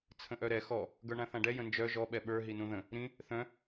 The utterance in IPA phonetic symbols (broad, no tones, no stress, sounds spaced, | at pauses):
t͡sʰ ə̃ ʔ œ ɾ ɛ x ɔ | ɡ ə˞ ɳ ã θ ã ɖ ɛ j ə̃ n d͡ʒ œ ʒ ɔ ɓ ɛ ɓ ə˞ ɦ i n ũ ð ə̃ | ɾ ĩ | θ œ̃